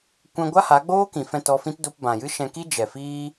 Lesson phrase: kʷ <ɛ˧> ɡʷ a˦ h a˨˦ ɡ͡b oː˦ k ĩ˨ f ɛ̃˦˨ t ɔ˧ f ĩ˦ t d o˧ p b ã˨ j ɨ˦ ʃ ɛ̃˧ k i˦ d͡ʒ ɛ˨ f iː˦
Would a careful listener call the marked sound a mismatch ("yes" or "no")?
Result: yes